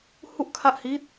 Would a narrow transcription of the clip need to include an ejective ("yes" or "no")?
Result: no